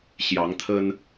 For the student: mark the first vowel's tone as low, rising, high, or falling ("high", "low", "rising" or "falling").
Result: rising